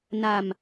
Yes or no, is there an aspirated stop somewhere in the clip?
no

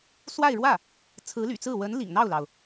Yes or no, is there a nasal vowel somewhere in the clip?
no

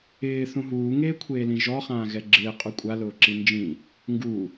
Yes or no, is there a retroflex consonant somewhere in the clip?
no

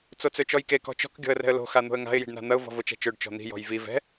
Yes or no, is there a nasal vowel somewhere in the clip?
no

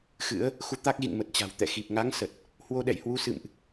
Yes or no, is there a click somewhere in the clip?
no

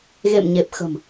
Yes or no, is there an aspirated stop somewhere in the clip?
no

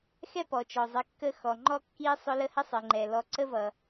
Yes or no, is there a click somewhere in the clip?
yes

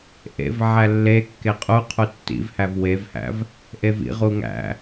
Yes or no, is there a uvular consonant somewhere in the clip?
yes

